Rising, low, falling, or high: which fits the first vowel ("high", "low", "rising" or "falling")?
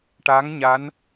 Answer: rising